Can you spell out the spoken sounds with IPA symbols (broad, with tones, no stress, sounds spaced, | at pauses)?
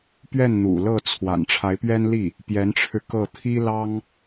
p ɥ ɛ˥˩ n n̪ ṵ˨˩ l ɤ˥˩ t͡sʰ w a̰˨˩ n ʈ͡ʂʰ a˧˥ ɪ̯ p ɥ ɛ˥ n l i˥˩ | p j ɛ˧˥ n ʈ͡ʂʰ ɻ̩˧ k ɤ˥˩ t̪ʰ i˥ l ɑ˥ ŋ